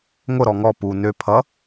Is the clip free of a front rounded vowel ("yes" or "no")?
no